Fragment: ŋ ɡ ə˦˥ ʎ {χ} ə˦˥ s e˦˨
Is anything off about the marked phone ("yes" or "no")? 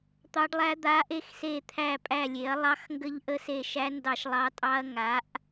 yes